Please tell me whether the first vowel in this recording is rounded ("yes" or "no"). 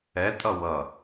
no